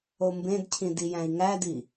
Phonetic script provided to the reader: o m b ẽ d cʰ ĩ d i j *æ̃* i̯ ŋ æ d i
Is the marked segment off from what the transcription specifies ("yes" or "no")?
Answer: no